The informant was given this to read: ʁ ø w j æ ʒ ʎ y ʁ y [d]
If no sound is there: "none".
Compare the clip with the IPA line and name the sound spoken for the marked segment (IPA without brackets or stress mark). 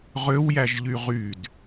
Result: d